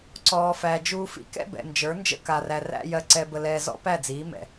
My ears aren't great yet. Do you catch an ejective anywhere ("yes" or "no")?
no